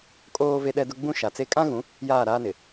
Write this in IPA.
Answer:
kʼ oː˦ v e˦ ɗ ɛ˦ d ʊ˦ ɡ͡b ũ˦ ʃ a˨ t͡s e˦ kʼ ã˦ ɣ ũ˨˦ | j aː˦˨ ɾ aː˦ n ɪ˨

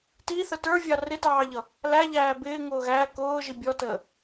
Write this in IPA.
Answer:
t i θ ə t ə˞ vʲ ɑ r ɪ t ɑː ʎ ʌ | l æ ʎ æː b ɪː ŋ ʊː ɣ æ k ʊː ʒ i bʲ ɔ t əː

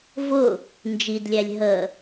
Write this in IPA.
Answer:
v ʊ | n d͡ʒ i d lʲ æ lʲ ɦ ə

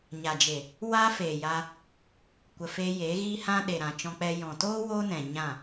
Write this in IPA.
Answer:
ɲ a˨ d͡ʒ e˨ | w a˦ f eː˨ j a˧ | kʷ ə˨ f eː˧ j eː˨˦ ɣ iː˦ h ã˦ ɗ e˨ ɾ ã˨ t͡ʃ ɔ̃˧ k͡p ɛ˧ j ɔ̃˨ t oː˦ w oː˦ n ɛ̃˨ ɲ ã˦˨

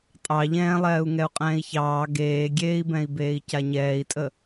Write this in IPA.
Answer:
tʼ ɑ ʎ ɛ̃ː lˠ ɛː u̯ ŋ ɛ u̯ qʼ ɛ̃ː i̯ ç ɑː ɡ eː ɡʲ eː i̯ b ɛ̃ i̯ b eː i̯ c a ɲ ɛː i̯ tʼ ə

